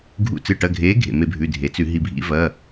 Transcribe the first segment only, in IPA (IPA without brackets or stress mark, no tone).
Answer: ɡʱ